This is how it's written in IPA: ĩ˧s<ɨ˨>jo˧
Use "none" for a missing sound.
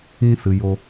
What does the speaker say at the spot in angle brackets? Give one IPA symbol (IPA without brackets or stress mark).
ɨ˨